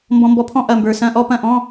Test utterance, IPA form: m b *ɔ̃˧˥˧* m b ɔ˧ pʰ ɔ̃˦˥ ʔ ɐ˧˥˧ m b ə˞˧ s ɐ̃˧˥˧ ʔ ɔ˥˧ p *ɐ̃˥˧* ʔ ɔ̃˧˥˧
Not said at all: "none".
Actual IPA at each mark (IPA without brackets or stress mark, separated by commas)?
ɔ̃˧, ɐ̃˥˧